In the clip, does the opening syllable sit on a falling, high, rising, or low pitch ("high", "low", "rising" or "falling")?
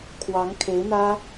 rising